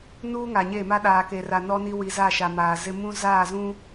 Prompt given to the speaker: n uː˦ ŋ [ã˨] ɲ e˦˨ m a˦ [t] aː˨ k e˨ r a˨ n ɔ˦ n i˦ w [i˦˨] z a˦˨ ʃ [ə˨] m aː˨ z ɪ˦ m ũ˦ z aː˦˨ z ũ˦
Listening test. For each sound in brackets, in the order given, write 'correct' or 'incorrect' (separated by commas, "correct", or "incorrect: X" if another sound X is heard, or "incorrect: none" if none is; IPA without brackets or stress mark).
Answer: incorrect: a˨, incorrect: ɗ, incorrect: i˨, incorrect: a˨